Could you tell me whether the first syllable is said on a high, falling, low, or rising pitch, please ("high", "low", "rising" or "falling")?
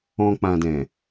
low